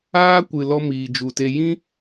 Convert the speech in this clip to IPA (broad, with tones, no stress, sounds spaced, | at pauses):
aː˦ kʷ ɨ˨ l ɔ˦ m iː˨ d͡ʒ u˨ t e˧ j ĩ˦